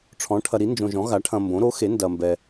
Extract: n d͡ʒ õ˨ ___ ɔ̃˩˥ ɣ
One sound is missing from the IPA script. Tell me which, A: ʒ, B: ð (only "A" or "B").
A